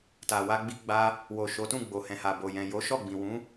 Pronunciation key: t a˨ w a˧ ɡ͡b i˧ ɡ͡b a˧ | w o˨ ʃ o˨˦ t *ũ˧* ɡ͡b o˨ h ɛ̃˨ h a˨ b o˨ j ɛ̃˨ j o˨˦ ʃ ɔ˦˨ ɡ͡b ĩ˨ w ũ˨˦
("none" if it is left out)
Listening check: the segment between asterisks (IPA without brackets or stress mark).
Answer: ũ˦˨